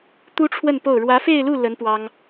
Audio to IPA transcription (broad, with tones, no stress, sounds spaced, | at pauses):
t̪ u˥ ʈ͡ʂʰ w ə˥˧ n p o˥˩ ʊ̯ ɻ w ä˧˥ f e˥˧ ɪ̯ l u˥˩ l ə˧˥ n p w ɑ˥ ŋ